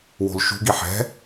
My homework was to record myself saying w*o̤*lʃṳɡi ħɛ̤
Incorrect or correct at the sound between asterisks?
correct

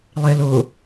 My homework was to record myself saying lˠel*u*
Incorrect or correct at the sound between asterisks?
incorrect: ʊ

